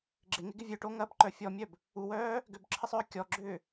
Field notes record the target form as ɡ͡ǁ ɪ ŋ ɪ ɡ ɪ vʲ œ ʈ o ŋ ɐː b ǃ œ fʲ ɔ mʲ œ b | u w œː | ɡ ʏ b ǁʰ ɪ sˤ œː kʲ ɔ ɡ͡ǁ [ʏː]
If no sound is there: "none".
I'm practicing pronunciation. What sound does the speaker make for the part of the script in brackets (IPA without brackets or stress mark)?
ʏː